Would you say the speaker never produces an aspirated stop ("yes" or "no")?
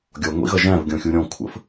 no